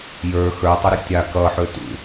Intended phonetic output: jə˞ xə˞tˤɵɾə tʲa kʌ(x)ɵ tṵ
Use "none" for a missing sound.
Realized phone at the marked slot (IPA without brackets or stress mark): ħ